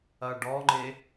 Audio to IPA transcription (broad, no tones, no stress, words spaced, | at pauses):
ɐɖɔŋ͡ǃe